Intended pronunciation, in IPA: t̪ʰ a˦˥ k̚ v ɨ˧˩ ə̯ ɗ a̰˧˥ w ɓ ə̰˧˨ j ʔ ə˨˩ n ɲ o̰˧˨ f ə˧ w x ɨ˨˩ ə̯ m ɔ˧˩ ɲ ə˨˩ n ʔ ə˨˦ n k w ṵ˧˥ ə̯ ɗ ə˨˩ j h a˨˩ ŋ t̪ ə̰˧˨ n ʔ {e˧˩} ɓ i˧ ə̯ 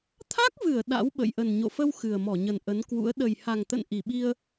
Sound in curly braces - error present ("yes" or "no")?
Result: yes